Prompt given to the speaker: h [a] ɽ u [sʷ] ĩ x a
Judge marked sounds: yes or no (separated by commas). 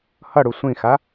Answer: no, yes